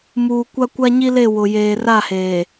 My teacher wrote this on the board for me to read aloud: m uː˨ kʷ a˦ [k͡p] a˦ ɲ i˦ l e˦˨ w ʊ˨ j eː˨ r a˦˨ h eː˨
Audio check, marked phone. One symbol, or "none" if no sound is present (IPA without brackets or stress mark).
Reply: kʷ